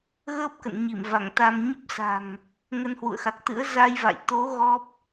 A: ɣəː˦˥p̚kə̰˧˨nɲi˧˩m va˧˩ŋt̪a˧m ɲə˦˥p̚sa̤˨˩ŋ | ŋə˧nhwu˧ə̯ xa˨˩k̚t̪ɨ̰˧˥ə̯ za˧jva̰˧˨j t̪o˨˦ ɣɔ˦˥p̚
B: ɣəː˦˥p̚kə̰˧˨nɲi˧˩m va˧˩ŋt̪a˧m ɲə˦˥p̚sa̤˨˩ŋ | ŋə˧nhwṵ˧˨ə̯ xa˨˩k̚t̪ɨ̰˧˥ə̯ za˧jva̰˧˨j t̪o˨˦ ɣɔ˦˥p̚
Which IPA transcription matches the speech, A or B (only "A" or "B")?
B